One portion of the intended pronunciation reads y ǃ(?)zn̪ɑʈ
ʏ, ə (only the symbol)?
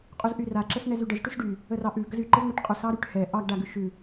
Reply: ə